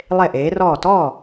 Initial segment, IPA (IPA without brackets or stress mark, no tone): lˠ